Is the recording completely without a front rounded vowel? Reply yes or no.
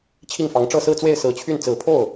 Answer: no